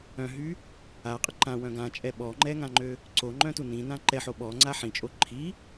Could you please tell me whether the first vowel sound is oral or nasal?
nasal